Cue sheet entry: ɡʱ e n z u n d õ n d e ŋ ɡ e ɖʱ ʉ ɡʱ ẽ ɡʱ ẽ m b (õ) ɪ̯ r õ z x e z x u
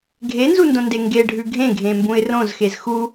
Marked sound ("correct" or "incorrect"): incorrect